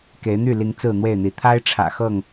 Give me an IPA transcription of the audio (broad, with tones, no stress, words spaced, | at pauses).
ke˨˦ɪ̯n̪y˥˨li˨˦ŋ t͡sɹ̩˥˨n̪we˥˨ɪ̯n̪i˨˦ t̪ʰa˦ɪ̯ʈ͡ʂʰä̰˨˩ xɤ˥˨ŋ